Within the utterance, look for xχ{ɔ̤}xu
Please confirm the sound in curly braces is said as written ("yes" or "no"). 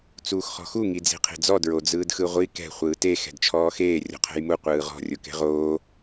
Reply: yes